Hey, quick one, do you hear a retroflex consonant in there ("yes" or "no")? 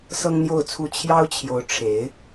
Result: yes